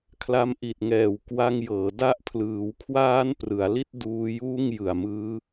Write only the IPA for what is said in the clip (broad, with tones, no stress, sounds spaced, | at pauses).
kʰ l a˧ m ʔ i˨˩ t̚ ŋ ɛː˨˩ w k w a˧ ŋ j ɤː˩˦ d a˦˥ ʔ pʰ l ɯː˩˦ w kʰ w aː˦˥ n p r ɯ˩˦ a̯ l i˥˩ t̚ d uː˧ j uː˥˩ ŋ j ɯ˨˩ a̯ m ɯː˦˥